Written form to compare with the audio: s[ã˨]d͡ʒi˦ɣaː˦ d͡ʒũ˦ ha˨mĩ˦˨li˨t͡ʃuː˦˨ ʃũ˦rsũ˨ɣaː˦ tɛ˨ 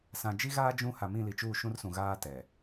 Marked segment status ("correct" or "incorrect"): correct